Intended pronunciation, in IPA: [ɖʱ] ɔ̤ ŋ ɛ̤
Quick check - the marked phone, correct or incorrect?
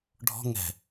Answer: correct